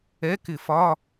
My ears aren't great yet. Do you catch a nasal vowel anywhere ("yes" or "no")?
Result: no